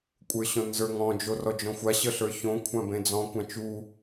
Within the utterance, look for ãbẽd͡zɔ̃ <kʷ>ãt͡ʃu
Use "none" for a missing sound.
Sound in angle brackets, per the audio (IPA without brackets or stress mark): kʷ